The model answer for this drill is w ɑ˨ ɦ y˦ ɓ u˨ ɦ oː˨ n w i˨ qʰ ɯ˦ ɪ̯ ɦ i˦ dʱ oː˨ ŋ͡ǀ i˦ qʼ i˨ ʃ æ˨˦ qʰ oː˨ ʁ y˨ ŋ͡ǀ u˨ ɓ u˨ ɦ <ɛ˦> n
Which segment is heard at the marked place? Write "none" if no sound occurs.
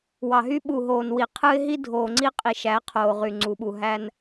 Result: æ˦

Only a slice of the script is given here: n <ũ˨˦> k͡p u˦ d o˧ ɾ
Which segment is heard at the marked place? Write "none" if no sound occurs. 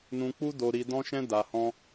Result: ũ˦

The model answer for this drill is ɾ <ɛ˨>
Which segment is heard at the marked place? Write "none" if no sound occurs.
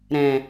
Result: ɛ̃˨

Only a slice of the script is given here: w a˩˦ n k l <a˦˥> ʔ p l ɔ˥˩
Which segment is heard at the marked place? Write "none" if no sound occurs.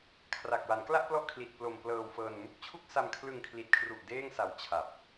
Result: a˥˩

